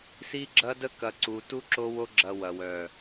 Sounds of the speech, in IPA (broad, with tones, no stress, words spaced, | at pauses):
si˧ɡ͡ǁɐ˧də˧ kɐ˨ǀu˨ tu˧ ǁo˧wo˧ɡ͡ǁɐ˨ wɐ˨wœ˨